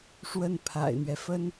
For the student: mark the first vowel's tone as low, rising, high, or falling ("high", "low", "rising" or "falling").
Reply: falling